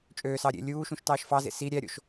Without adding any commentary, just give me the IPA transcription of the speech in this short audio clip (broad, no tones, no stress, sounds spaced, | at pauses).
t͡ʃʼ øː s ɑ ɾʲ ḛ lʲ uː ʃ ũ ʃ t ɑː ʃ f ɑ z ḛ s i ɾʲ æ ɾʲ o̰ ʃ